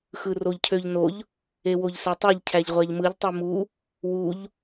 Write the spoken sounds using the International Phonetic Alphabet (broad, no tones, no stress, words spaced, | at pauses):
xɯroʎcʰøʎnoʎ | ewoʎsøtˤeʎ cʰæʎʁʷæʎmɯʎ tˤimu | wuʎ